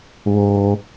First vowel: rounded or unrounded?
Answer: rounded